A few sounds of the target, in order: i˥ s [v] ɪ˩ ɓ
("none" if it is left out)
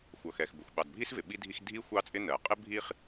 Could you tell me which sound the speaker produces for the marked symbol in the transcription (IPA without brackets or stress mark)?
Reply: v